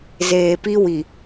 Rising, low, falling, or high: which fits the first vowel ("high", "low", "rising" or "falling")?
low